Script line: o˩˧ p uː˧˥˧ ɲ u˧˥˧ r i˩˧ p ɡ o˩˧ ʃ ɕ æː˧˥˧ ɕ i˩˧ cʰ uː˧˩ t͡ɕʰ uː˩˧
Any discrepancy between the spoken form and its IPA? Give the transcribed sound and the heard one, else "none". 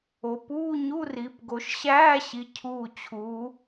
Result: none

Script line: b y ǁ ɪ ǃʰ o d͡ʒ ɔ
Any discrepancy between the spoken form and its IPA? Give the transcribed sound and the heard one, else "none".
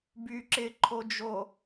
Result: ɔ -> o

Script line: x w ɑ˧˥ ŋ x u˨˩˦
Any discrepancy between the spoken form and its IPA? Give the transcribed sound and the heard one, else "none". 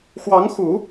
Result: none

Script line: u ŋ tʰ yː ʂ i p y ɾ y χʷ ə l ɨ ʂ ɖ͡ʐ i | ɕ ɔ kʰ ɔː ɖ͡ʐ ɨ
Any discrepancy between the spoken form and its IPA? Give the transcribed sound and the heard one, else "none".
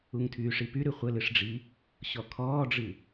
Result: none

